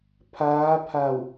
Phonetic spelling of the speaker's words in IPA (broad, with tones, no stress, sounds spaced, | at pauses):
pʰ aː˧˥ pʰ a˧˩ w